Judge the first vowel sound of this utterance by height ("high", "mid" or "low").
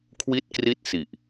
high